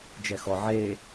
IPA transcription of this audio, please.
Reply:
d͡ʒ ɛ x ɔ ʕ e

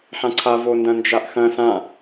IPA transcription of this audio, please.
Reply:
ħ ã ǀʰ a v o n d ɐ̃ n d͡ʒ a ʔ x ɐ̃ s ã

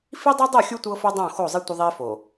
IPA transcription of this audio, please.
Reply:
f i˦ dˤ ɤ˦ dˤ o˦˨ xʲ u˦ tʷ ɤ˦ f o˦ dˤ õ˦˨ x o˦˨ zˤ i˦ tʷ ə˦ ðˤ i˦ f o˨

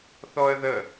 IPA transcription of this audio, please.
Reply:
θ ɔ ə̯ ð ə

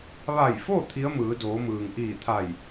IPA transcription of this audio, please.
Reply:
ʋ a˧˩ j f o˥˨ t̪ʰ i˧˥ ə̯ m ɯː˩˧ d oː˩˧ m ɯː˩ ŋ ʔ iː˧˩ t̪ʰ a˧˩ j

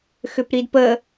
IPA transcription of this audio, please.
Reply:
x ʏ p ɾ i d p ə

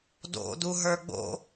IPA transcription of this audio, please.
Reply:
d o̰ d u ɦ ə˞ ɡ͡b o̰

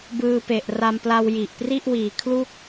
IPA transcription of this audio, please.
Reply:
b ɯː˧ p e˨˩ ʔ r a˧ m p l a˧ w j i˨˩ ʔ p r i˥˩ ʔ w iː˨˩ kʰ l u˥˩ k̚

